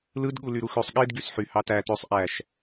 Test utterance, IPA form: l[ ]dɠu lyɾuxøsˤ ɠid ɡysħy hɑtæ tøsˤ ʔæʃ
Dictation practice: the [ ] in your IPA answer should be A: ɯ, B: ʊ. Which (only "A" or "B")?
A